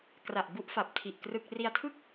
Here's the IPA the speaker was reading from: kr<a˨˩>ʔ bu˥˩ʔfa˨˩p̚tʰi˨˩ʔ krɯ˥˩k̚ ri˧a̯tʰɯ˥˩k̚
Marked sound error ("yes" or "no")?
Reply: no